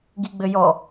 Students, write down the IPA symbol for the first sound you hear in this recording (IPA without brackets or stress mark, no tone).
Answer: ɡ